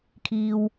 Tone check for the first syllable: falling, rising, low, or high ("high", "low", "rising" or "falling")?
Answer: low